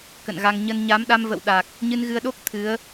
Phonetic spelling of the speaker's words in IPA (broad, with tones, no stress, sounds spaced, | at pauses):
k ə̰˧˨ n ɣ a˧ ŋ ɲ ə˧ n ɲ a˨˦ m ɗ a˧ m v ə̰˧˨ w ɗ a˨˩ k̚ | ɲ ɨ˧ n ɣ ɨ˧ ə̯ ɗ o˦˥ k̚ t̪ʰ ɨ˨˦ ə̯